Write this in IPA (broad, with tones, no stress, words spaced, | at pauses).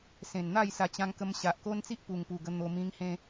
sẽ˨˩nn̪a˥˧j sa˨˩t͡ɕã˧ŋ kə˧mɕa˨ʔko˦nt͡si˦ʔ pu˨˩ŋpu˨˩ɡə˧ n̪o˧ mĩ˧ŋhẽ˧